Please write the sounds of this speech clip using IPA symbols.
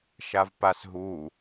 ʃ a v p a s ɦ u

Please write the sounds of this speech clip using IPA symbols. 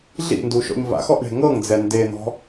ɮ ḭ n d u ʃ ɔ̰ ɲ v a̰ x ɔ ʔ ɳ e̤ ŋ ɤ ŋ d͡z ɛ n d e n̪ ɔ̤

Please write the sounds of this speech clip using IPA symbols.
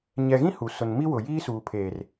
ɲ ɛ˨ ɣ ĩ˦ h u˨ s ʊ˨ n m i˦ w ʊ˨ j iː˦ s uː˨ pʰ eː˨ r

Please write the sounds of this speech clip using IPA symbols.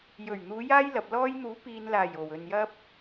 j ɵ˨˩ ɥ n̪ uː˨˧ j aː˥ j l ɐ˨ p̚ l ɔː˧ j n̪ uː˨˥ p iː˨ n l aː˨˩ j o˨˩ w ɵ˨ n j ɐ˥ p̚

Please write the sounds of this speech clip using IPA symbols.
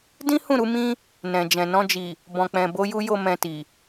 d ĩ˦ h ũ˦˨ ɾ u˧ m ĩ˦ | n ɛ̃˨ d͡ʒ ɛ̃˨ n ɔ̃˧ d͡ʒ i˨ | b ɔ̃˨ k͡p ɛ̃˨ b o˧ j u˧ j o˦ m ɛ̃˧ t i˨

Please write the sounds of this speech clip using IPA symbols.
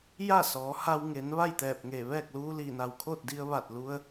j a˥˨ s ɔː˩˧ h a˧ w ŋ e˩˧ n ʋ a˥˨ j t̪ ɛː˧˩ p̚ ŋ eː˧˩ ʋ ɛː˥˨ k̚ l uː˧ l iː˧˩ n a˧˩ w kʰ oː˥˨ t̚ d i˧ ə̯ ʋ a˧˩ t̚ l u˧ ə̯

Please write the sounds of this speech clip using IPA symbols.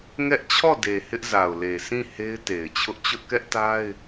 ŋ ɛ˦ ʔ t͡ɕʰ ɔ˦˨ d e˨ h ɪ˦ ʔ z a˨ ʊ̯ l e˨ s ĩ˦˨ h e˦ ɪ̯ t e˨ ɪ̯ t͡ɕʰ ʊ˦ ʔ t͡ɕ ʊ˦ ʔ k ɛ˦ ʔ t a˦ ɪ̯

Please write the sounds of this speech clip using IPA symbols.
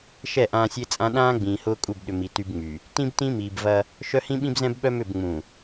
ʃ ɛ˦˨ ʔ ãː˦ sʲ e˦ t͡sʼ ã˦ ɗ ãː˦ ɡ͡b ĩː˨ h ʊː˦ kʼ u˦˨ b ɗ ʏ˨ m i˨ t y˦ b ŋ͡m y˨ | t ĩ˦ b t ĩ˦ m iː˨ b v ɐ˦ | ʃ œ˦ h ĩ˦ ɓ ĩ˦ b z ɛ̃˦ b ɓ œ˦ m ʏ˦˨ b ŋ͡m ũ˨

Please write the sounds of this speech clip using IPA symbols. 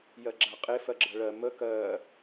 j ɜ ɡ͡ǁ a qʼ e f ɜ ɡ͡ǁ ɜ ɭ ɜ m ə k ɜ

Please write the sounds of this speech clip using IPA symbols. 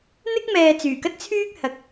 n̪ ɪ˥ k̚ m ɛː˨ t͡s yː˨˩ k ɐ˥ t̚ t͡sʰ yː˥ k̚ h ɐ˨ k̚

